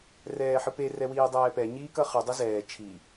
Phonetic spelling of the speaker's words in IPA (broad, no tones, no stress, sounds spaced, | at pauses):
r ɛː ħ ɯ p e r ɛ w iː dˤ ɛː p ɛ ɲ iː k ʌ χ ɯ dˤ i z ɛː t͡ʃʰ i